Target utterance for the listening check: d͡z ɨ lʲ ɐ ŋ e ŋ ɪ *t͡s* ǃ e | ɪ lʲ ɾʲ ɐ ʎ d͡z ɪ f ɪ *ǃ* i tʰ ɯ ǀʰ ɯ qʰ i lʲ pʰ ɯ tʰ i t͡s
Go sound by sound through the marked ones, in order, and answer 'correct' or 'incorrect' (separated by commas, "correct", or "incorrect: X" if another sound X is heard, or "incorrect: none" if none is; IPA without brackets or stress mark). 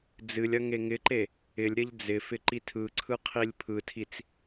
incorrect: none, correct